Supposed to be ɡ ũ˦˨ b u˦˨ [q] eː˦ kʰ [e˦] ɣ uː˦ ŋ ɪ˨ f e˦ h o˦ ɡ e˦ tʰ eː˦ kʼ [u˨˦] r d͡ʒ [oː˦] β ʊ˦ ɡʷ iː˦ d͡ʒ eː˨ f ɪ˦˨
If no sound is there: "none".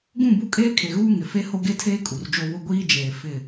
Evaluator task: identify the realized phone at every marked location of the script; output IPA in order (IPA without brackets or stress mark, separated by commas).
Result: kʼ, e˨, u˨, o˦